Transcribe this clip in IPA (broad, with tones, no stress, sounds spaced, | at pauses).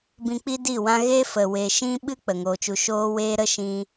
b ĩ˧ k͡p i˦ d i˦˨ w ã˦ ɣ e˦ f ə˨ w e˨ ʃ ĩ˦ ɓ ɨ˦ k͡p ə˨ ŋ oː˧ t͡ʃ u˧ ʃ oː˦ w eː˦ ɾ ə˦ ʃ ĩ˦